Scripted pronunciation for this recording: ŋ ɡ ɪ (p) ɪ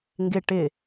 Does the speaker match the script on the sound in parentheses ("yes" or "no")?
no